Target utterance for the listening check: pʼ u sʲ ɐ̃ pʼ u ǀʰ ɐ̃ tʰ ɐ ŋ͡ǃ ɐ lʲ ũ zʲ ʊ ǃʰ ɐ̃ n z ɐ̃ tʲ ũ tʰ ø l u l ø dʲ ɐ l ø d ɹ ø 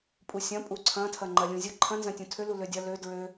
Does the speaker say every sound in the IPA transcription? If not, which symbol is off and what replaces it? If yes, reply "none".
none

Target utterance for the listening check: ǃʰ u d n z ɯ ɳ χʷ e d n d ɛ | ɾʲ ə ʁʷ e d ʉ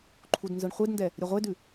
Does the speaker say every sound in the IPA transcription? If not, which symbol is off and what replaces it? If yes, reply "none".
none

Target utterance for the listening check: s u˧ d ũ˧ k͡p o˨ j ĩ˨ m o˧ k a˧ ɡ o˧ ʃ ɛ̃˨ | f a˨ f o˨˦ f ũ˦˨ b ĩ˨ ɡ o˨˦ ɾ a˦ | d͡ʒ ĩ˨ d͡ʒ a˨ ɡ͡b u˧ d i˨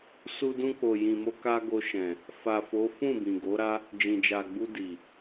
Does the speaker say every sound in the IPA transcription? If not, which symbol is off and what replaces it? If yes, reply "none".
none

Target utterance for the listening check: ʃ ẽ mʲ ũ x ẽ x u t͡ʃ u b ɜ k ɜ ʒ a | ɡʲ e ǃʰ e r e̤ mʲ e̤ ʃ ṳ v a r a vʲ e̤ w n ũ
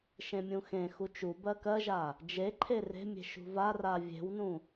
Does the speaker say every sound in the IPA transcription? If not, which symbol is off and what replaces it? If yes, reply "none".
ɡʲ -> d͡ʒ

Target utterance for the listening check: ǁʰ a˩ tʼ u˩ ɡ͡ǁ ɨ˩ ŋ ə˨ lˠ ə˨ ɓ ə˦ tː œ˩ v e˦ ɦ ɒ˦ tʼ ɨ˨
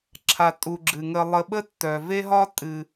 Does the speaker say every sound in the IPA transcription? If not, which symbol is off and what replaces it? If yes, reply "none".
none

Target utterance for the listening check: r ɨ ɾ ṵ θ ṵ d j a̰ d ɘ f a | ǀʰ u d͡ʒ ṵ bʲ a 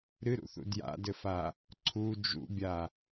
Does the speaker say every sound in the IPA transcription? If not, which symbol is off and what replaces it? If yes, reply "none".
r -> ɾ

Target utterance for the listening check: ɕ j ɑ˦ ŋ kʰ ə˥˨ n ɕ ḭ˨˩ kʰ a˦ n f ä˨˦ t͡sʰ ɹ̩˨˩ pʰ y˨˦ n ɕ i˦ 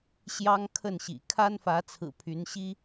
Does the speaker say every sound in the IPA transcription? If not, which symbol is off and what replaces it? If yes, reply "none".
none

